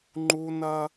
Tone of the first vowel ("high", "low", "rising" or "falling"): high